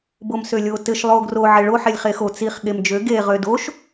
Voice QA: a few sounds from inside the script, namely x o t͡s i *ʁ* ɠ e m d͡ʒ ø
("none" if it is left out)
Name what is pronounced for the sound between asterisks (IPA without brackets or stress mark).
χ